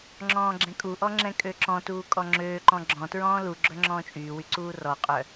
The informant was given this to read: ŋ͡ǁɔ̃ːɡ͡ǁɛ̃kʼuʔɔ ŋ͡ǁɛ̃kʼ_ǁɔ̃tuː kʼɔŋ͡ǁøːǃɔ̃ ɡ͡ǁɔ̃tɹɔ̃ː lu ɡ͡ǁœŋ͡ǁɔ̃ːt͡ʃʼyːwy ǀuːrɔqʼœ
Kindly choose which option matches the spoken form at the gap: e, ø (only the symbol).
ø